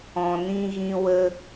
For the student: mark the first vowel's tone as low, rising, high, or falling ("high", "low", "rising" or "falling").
low